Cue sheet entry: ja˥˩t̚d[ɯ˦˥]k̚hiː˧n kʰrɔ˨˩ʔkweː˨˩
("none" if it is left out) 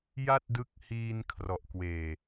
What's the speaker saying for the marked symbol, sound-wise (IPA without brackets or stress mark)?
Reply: ɯ˦˥